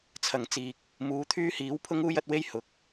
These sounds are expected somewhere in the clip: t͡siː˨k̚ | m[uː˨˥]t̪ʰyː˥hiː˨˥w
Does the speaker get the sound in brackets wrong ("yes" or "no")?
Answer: no